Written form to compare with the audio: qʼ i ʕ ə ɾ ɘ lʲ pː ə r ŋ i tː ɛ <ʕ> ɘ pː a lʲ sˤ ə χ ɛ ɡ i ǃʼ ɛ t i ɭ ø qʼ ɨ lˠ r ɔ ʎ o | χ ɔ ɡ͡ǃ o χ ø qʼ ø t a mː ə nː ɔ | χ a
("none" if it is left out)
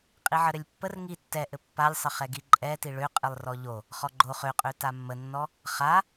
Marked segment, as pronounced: ʔ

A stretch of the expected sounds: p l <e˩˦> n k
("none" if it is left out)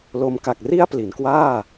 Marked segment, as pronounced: i˩˦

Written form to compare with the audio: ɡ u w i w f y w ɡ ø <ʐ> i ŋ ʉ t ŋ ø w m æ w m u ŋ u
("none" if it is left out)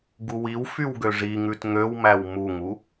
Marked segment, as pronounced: ʐ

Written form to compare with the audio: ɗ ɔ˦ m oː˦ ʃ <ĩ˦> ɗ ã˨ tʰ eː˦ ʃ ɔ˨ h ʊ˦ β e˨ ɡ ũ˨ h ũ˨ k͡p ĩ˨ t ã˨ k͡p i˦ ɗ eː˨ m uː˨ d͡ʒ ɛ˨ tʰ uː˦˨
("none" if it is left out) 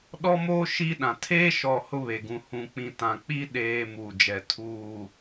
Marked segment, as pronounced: i˦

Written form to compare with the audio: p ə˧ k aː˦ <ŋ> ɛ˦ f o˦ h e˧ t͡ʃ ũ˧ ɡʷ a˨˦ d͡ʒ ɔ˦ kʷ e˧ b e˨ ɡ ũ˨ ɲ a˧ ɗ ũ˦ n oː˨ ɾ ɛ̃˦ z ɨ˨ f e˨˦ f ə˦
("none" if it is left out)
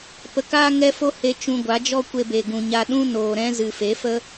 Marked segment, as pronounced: ŋ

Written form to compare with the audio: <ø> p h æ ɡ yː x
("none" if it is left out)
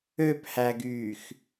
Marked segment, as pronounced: ø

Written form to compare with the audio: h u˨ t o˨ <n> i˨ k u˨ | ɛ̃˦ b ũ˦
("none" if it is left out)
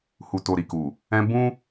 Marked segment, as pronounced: ɾ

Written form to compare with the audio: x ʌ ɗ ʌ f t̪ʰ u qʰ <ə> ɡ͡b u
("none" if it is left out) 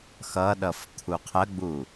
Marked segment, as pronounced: ə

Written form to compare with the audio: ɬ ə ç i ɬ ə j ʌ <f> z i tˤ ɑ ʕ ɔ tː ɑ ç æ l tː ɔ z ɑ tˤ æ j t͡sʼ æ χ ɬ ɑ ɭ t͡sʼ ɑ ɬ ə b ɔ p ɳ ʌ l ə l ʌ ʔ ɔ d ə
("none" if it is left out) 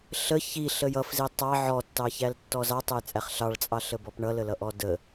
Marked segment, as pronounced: f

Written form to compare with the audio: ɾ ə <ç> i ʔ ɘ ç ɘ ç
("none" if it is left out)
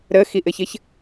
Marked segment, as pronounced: x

